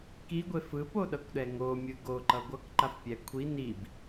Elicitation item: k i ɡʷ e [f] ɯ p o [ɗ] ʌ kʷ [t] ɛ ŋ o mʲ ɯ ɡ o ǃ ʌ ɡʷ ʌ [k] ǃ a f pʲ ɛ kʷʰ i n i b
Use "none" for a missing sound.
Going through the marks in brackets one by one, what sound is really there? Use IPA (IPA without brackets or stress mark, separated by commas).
f, ɗ, ɗ, k